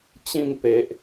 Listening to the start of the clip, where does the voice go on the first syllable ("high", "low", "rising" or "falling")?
falling